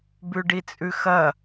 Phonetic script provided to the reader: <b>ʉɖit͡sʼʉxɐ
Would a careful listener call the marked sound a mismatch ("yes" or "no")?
no